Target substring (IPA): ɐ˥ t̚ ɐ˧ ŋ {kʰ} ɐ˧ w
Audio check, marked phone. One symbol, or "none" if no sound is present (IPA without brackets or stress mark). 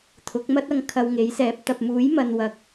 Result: kʰ